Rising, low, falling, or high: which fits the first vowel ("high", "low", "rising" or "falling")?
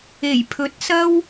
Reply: low